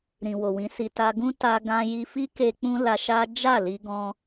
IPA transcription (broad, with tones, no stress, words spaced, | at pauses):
ɾĩ˨wo˨wĩ˨˦si˧ ta˧ɡũ˦ ta˦ ɡã˧ji˧fi˦ke˧ k͡pũ˦la˧ʃa˦ d͡ʒa˦˨li˧ɡɔ̃˧